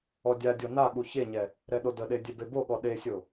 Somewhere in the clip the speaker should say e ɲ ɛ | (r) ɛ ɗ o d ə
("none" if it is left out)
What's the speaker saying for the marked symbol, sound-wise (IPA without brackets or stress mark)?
ɾ